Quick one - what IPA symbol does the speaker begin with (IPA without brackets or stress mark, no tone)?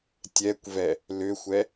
tʲ